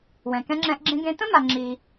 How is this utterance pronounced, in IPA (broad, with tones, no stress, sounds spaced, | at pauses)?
w ɛ̃˩ k ɛ̃˧ ŋ͡ǁ ɛ̃˧ ʔ ɡ͡ǁ ẽ˧ ɡ ẽ˧ t̪ ə̃˥ m a˩ ŋ͡ǁ i˩